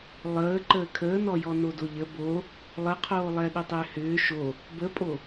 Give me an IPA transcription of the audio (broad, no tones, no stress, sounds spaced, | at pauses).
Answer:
lˠ əː ǃ əː kʰ əː n ɔ j ɔ n o d o ʎ ə b o | lˠ ə qʰ oː lˠ ɛ ɗ ʏ tˤ ʏː h ʏː ʃ o | b ə pʼ o